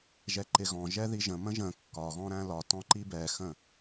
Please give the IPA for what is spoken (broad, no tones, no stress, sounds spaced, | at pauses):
ʒ ɛ ǃ ɪ ɣ ɔ̃ ʒ ɛ ð i ʒ ə̃ m ə̃ ʒ ə̃ kː ɒ ɣ ɔ̃ ɾ æ̃ l ɒ t ɔ̃ ǃ i b ɛ x ə̃